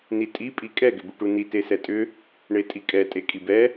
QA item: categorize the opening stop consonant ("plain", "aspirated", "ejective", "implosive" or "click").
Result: ejective